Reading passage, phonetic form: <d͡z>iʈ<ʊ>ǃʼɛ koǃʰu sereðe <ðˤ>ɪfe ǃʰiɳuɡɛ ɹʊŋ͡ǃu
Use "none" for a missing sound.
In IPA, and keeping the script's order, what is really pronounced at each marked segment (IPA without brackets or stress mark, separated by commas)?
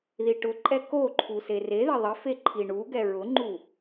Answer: ð, ʊ, ðˤ